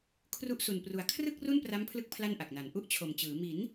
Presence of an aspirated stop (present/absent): present